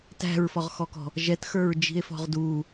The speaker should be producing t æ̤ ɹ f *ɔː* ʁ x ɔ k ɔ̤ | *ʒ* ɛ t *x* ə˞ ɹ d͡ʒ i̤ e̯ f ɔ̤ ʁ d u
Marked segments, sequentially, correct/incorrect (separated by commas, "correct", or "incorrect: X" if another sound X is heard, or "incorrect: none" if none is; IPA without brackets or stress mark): incorrect: ɔ, correct, correct